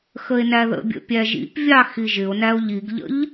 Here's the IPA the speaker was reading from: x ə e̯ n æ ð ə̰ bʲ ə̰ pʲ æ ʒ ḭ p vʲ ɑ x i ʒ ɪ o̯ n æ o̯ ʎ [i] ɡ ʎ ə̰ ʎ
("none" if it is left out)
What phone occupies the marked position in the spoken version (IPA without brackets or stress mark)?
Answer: i